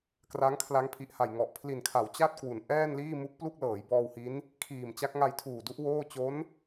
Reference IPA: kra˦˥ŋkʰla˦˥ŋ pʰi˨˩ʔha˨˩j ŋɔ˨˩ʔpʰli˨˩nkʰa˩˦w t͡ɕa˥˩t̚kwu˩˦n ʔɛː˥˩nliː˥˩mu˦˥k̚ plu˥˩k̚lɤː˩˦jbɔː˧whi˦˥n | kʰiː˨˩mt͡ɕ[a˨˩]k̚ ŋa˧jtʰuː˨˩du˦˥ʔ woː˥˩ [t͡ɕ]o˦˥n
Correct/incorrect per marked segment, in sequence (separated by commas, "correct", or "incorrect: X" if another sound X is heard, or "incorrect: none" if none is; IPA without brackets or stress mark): incorrect: a˦˥, correct